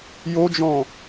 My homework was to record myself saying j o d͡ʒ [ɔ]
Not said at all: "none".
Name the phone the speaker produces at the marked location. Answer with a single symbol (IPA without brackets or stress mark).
ɔ̃